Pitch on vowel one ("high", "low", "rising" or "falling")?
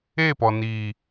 falling